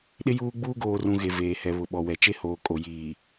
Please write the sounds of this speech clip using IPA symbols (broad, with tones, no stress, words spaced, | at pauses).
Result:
ɗɪ˦juː˦ɡ͡buː˦ ɡoː˨rũ˨ ɣe˨veː˨hɛ˨ βʊ˨ɓɔ˨wɛ˨t͡ʃe˦ hoː˨kʼo˨jiː˨